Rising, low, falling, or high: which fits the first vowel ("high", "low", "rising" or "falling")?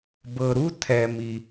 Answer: low